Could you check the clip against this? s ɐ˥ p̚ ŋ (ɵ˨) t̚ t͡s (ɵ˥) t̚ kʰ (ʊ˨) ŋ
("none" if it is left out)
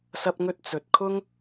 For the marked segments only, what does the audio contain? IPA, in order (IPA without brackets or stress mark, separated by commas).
ɵ˥, ɵ˨, ʊ˥